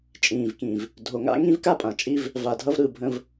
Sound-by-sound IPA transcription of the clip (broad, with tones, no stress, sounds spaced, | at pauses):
t͡ʃʼ ĩː˨ v k ĩ˨ v | dʱ o˨ ŋ a̰˦ ŋ ĩ˦ v k a˦ pʼ ã˨ t͡ʃʼ i˦ v | v a˨ dʱ ʌ˦ v ɾ ɯ˦˨ bʱ ə̃˦ v